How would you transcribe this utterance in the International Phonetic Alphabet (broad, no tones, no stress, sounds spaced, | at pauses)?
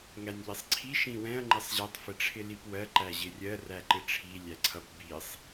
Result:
ŋ æ nʲ ʎ i sˤ ǀʰ i ʃ ĩ w ɛ̃ ɐ̯ ŋ͡ǃ ɪ sˤ ʑ ɛ tˤ f ɪ ʈ͡ʂʰ ɪ l i p w ɜ ǃ æ ʑ ɪ rʲ ɜ r æ ǃ ɪ ʈ͡ʂʰ i lʲ æ ǀʰ ʌ p b i sˤ